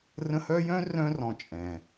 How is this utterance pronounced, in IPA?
r ə̃˦ h œ˥ j œ̃˥ r œ̃˦ r ɔ̃˨ t͡ʃʼ ɛ̃˩

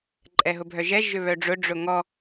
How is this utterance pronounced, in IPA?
ǃʼ ɛ ɦ ʊ bʱ œ ʒ ɛ ʒ ʏ β œ ɖ͡ʐ ʊ ɖ͡ʐ ʊ ŋ ɔ

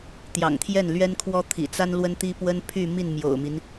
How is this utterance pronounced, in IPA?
t̪ j ɑ̰˨˩ ŋ t̪ʰ j ɛ˥˩ n l ɥ ɛ˥ n kʰ w ɔ˥ t̪ʰ ḭ˨˩ t͡s a˥ n l w ə˥ n t̪ i˥ p w ə˥ n pʰ y˥˧ m i˥˩ n m j o̰˨˩ ʊ̯ m i˦ n

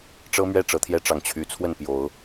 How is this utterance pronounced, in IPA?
ʈ͡ʂ ɤ˦ m ɥ ɛ˥˨ ʈ͡ʂ ɤ˨˦ t̪ʰ j ɛ˦ ʈ͡ʂ ɑ˨˩ ŋ t͡ɕʰ y˨˦ t͡sʰ w ə˥˨ n p j o˨˦ ʊ̯

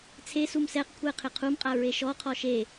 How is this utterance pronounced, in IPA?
t͡sʰ e s u m s ɛ q kʷʰ ɛ qʰ ɪ qʰ u m qʼ a ɹ e ʃ ɔ qʰ ɔ ʃ e

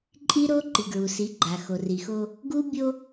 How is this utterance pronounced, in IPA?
ǃʼ i˦ ɾ o˦ ǃ i˨ ɡ ɹ u˨ s i˨˦ ɡ͡ǃ a˨ x o˨ r i˨ x o˦ | ɡ u˦ bʲ o˦

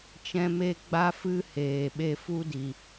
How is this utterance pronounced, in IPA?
t͡ʃ ɛ̃˦ m e˦ ɡ͡b a˦ f ɨ˦ h eː˨ ɓ e˧ f u˦ d i˨

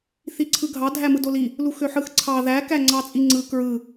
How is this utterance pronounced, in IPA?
θ i ǀʰ ɯ ɡʱ ɑ dʱ æ m ɯ d o l i | l u x ø ħ ɯ x ǀʰ ɑ ð æ k æ ŋ͡ǀ ɑ t͡sʼ i ŋ͡ǀ ɯ k ɹ ɯ

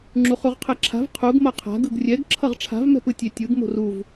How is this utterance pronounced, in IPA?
ŋ͡ǁ u χ u ʁ qʰ ɛ ǁʰ a̤ v qʰ u ɡ m ʌ qʰ a̤ ɡ ɯ ɡ rʲ ɛ ɡ ǁʰ ʌ ʁ ʈ͡ʂʰ a̤ v m ɛ̤ p ɯ tʲ e tʲ ɯ ɡ m o̤ r u v

